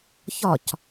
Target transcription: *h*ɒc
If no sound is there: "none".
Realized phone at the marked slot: ç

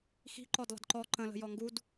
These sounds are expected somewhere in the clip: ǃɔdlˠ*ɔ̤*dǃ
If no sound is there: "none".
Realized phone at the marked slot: ə̤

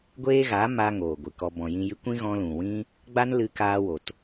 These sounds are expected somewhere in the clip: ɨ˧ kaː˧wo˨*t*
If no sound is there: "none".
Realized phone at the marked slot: t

